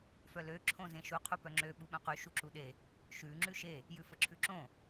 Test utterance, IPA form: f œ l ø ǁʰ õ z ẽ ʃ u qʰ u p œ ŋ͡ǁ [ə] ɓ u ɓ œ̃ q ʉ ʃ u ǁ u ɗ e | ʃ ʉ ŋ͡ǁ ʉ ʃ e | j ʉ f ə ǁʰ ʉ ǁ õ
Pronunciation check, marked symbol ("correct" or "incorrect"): incorrect